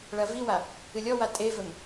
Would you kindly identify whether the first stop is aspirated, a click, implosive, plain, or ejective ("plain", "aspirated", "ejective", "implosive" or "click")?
ejective